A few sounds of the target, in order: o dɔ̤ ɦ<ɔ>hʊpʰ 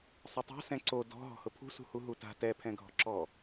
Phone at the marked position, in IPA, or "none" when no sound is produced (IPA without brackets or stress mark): ɔ̤